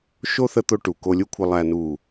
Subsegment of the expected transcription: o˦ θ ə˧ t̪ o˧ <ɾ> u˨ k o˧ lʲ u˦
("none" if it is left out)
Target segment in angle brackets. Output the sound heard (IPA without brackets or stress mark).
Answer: ʈ